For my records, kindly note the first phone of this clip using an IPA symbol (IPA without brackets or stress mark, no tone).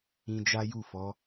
ĩ